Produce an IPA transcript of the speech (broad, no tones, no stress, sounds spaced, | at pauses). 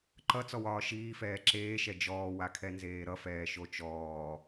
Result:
ǃ ʌ t͡s ɔ w ɒː ʃ iː f ɛː ǁ eː ʃ ɛ d͡ʒ ɔː w a kʰ ɛ n z eː ɾ ʌ f ɛː ʃ o t͡ʃ ɔː